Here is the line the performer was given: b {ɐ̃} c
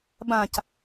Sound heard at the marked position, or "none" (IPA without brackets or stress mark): ã